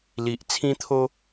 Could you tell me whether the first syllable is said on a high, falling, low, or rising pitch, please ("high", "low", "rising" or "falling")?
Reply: low